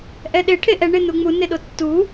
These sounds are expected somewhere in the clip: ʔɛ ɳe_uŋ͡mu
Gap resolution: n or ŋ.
n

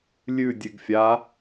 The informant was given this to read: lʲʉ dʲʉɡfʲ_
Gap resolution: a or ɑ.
a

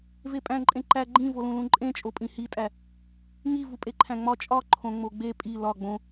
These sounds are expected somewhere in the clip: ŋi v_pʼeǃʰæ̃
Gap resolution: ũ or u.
u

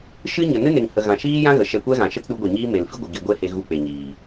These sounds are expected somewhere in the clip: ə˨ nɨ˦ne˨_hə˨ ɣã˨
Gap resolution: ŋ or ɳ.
ŋ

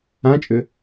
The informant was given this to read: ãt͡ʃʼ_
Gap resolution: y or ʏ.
ʏ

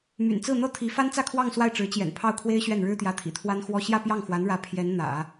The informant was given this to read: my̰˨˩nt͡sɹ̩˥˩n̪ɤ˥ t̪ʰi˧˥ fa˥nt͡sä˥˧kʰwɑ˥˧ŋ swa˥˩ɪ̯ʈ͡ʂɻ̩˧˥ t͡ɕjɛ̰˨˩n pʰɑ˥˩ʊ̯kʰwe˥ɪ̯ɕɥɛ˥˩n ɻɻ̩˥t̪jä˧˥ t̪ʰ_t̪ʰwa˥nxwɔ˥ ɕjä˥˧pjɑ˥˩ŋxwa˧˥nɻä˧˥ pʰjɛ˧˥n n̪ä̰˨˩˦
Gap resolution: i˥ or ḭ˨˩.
ḭ˨˩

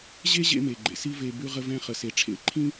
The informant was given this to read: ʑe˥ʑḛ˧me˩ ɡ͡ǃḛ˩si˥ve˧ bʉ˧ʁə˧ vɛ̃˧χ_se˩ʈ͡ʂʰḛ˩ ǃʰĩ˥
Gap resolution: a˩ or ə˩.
ə˩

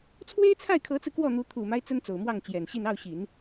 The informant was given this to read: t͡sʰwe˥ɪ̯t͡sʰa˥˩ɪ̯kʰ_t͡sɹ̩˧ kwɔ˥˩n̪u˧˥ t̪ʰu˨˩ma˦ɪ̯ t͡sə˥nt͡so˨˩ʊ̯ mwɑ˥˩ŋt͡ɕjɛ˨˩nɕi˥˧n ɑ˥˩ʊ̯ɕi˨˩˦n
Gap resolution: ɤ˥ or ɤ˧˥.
ɤ˧˥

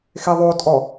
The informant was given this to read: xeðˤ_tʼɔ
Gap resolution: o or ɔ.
o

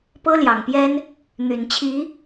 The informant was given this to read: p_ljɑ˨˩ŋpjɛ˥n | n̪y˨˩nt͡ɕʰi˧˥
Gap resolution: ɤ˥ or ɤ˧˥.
ɤ˥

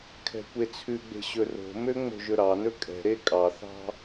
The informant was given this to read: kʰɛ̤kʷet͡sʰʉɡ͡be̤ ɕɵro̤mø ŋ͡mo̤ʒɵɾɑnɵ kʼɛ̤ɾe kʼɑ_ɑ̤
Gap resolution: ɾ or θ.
θ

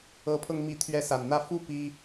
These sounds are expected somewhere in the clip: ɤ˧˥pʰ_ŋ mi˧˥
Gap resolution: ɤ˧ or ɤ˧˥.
ɤ˧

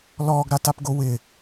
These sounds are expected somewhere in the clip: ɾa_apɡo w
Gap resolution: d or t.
t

